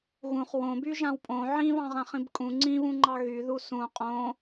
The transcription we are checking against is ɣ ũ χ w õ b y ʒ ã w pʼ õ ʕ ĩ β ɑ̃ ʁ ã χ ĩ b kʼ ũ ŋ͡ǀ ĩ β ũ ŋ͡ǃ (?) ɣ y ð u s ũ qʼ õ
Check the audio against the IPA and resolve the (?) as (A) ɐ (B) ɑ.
B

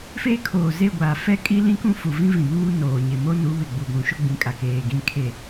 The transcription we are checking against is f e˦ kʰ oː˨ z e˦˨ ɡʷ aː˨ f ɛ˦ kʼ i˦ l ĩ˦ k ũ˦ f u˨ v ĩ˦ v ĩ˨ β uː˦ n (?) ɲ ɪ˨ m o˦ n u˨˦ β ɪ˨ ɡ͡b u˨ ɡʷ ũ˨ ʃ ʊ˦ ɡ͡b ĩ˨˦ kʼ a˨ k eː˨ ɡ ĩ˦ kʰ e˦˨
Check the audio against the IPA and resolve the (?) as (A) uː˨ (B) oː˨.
B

